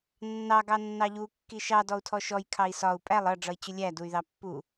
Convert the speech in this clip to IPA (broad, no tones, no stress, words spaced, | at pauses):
nːɑ ɡɑnːɑʎu kːiʃɑ dɔu̯tʰɔʃɔj kʰɑi̯sɒu̯ pʼælˠ ʌ ɖ͡ʐʌi̯t͡ɕʊlʲæ duy̯ðɑpːu